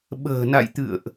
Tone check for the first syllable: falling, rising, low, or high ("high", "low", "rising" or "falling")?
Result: low